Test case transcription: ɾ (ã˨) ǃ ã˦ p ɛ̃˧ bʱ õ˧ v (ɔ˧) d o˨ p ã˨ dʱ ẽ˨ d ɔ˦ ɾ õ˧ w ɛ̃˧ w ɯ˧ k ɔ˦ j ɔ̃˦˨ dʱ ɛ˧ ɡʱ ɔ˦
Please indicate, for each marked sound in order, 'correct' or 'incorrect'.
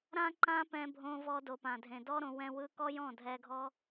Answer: incorrect, correct

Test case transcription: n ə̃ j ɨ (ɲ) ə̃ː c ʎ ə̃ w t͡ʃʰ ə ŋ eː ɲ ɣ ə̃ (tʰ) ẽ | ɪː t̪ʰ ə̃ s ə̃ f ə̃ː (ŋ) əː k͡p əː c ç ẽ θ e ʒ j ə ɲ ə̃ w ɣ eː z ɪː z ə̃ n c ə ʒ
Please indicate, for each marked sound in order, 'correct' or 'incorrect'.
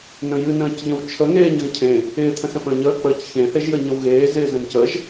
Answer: incorrect, incorrect, incorrect

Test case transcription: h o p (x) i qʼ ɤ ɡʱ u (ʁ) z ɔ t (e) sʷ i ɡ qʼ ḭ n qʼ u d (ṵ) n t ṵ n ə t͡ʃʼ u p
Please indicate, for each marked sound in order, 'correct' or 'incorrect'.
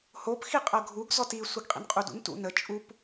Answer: correct, incorrect, incorrect, correct

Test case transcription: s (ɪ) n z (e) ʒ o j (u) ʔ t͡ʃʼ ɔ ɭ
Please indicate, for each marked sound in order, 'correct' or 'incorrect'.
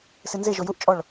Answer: correct, correct, correct

